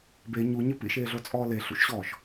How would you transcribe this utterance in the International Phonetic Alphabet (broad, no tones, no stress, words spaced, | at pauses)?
be ɲuɲɘ pḭʃeːɮot͡sʼɔː leɬṵʃɕɔːʃ